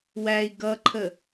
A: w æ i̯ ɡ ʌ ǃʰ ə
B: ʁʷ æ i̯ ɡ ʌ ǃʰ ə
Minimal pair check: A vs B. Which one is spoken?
A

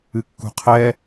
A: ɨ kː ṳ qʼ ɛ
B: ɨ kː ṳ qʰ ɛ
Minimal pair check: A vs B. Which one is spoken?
B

